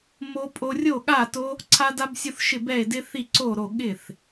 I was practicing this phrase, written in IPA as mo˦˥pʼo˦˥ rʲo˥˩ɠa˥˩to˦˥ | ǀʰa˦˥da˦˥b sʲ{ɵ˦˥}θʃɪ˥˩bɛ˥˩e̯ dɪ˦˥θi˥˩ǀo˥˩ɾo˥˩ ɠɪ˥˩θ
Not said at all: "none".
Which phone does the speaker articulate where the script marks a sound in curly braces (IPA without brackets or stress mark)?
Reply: o˦˥